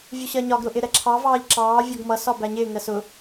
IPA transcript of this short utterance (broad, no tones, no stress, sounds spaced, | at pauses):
vʲ u ɕ ɜ ɲ ɒ ɡ ɾ ʊ ʔ ɪ ɾ ɛ ǁʰ ɑ v ɑː ʎ ǁ ɑː vʲ ɔ ɡ m ʌ s ɒ b æ ɲ ɪː ŋ ɜ s ʊ